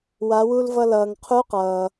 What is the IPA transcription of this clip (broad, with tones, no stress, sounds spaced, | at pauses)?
w a˩˧ w u˧ l v ʌ˧ l ʌː˩ ŋ qʰ u˧˥ q ʌː˩